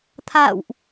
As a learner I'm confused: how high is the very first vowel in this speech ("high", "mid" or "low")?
low